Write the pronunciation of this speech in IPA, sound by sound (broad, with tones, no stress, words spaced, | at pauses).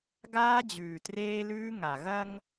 ɡaː˦d͡ʑʉː˨treː˦lʉː˦ ŋa˨ɣɐ˦ŋ